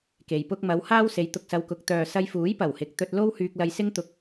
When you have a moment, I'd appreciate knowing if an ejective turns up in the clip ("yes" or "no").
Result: no